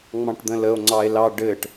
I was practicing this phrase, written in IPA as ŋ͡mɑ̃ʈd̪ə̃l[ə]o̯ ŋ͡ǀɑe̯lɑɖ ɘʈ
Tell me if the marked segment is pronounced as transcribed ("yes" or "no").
yes